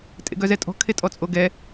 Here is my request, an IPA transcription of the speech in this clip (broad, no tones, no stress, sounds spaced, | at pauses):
tʼ ḛ ɡ œ z ɛ tʼ ɔ̤ kʰ e tʼ ɔ t͡sʼ o ɡ ɛ